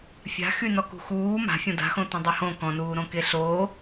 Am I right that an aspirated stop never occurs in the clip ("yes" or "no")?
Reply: yes